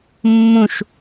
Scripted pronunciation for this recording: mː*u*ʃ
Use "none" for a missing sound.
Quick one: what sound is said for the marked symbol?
ũ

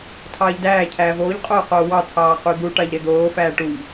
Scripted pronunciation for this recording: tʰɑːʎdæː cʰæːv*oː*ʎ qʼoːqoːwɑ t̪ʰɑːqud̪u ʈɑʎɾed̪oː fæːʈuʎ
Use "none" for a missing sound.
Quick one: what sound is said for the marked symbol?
oː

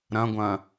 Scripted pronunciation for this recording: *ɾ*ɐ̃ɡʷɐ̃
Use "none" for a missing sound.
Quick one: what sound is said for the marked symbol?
ɾ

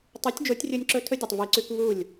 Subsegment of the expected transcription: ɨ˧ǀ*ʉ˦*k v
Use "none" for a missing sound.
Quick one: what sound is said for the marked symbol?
ʉ˦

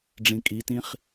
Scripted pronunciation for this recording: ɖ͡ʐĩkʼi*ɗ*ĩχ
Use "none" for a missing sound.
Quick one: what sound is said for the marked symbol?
t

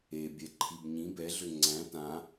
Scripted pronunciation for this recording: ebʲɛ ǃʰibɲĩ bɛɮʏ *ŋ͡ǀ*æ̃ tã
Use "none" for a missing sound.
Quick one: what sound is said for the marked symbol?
ŋ͡ǀ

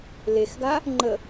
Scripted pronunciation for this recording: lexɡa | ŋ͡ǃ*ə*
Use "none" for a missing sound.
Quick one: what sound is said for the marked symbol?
ə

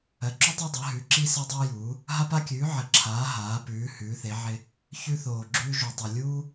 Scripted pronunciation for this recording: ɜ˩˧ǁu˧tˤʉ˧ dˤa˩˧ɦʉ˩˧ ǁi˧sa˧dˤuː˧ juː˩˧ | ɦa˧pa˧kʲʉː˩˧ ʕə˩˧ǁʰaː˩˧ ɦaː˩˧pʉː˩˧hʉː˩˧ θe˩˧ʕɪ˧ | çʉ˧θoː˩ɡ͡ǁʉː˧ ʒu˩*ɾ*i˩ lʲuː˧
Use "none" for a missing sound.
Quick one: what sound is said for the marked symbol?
tˤ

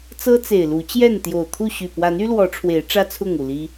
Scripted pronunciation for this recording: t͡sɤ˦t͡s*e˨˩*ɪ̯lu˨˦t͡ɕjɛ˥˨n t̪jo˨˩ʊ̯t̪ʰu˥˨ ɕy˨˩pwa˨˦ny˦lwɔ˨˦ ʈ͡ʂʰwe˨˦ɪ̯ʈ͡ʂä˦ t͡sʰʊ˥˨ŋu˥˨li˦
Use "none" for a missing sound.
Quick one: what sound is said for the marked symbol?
e˨˩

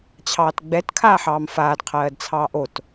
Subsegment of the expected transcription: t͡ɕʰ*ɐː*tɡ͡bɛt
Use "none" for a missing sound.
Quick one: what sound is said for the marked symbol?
ɑː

